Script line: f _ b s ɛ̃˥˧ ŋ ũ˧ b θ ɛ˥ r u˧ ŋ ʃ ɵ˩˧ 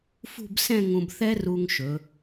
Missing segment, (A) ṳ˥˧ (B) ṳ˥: A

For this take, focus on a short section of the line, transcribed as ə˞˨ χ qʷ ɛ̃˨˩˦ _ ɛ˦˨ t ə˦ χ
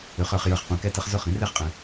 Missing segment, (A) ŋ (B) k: B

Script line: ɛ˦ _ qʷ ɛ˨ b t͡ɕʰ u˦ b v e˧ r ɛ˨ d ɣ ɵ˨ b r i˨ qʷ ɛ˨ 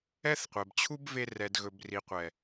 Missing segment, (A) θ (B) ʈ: A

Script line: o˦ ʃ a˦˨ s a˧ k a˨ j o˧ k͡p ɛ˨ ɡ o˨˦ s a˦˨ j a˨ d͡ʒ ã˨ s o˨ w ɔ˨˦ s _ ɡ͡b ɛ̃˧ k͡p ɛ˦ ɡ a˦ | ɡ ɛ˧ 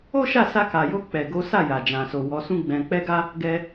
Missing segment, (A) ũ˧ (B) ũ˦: B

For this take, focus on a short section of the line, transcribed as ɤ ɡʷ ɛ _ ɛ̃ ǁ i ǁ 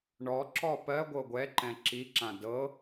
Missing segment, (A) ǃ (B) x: A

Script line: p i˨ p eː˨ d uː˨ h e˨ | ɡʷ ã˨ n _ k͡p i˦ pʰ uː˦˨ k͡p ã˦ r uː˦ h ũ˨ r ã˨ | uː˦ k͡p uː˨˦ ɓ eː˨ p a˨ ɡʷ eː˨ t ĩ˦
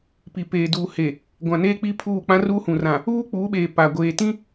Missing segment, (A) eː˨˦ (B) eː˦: B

